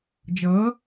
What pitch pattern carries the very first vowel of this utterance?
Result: rising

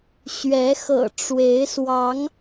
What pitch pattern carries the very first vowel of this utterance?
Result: rising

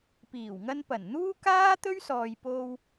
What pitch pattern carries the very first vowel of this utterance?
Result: low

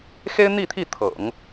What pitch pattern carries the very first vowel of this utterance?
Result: high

